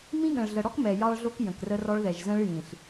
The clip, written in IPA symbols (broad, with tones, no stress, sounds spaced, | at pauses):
m ĩ˦ ɠ ə̃˨ ɭ ɮ ə˨ ɽ ɔ˦ k m ɛ˨ j ɑ˦ ɭ ɮ o˦ k j ə̃˨ k r ə˦ r ɔ˦ ɭ ð ɛ˨ ʒ z ə̃˦ ɭ j ĩ˨ ɬ